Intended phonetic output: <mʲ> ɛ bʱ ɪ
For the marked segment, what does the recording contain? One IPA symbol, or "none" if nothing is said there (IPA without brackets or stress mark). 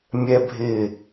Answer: mʲ